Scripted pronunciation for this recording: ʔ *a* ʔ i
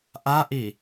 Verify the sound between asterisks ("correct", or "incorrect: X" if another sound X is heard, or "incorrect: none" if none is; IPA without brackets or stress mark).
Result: correct